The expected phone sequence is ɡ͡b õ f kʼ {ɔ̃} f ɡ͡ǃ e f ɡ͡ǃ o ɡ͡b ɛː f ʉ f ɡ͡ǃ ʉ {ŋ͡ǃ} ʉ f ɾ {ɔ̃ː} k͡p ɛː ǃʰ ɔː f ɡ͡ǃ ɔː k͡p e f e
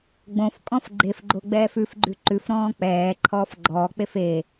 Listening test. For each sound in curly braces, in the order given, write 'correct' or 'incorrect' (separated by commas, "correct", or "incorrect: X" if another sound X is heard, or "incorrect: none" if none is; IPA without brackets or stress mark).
correct, incorrect: ǃ, correct